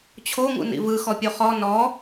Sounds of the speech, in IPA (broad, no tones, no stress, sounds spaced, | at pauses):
t͡ɕʰ o ŋ ṵ n ḭ v ɯ x ɔ pʲ o χ ɔ n ɔ